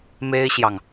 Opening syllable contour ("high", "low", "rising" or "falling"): high